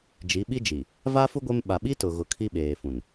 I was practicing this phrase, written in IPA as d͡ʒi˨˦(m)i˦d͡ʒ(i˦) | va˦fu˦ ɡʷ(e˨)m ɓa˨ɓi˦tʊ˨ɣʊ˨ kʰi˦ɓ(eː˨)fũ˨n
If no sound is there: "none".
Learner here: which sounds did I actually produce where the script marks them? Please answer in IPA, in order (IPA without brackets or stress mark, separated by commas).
ɓ, i˨, e˦, eː˨